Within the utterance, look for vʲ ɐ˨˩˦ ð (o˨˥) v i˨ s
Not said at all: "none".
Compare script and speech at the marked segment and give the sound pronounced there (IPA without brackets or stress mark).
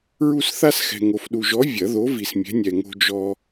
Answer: o˨˥